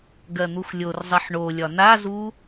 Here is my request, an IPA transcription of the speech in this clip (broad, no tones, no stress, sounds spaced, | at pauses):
ɡ ɜ n̪ u x lʲ o r zˤ i ħ ɳ o lʲ ɒ n a z u